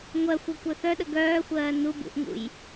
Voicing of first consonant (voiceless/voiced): voiced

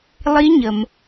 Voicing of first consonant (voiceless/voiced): voiced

